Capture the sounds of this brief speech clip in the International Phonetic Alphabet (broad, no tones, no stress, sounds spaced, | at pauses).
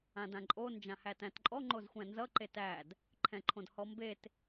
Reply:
ã d ã ǃʼ o n d͡ʒ ã h æ t æ̃ t ǃʼ ɔ ŋ͡ǃ o z xʷ æ̃ n z ʌ ǃ e t æ d | ǃʰ ɛ̃ ǃʰ õ d h ɔ m b e t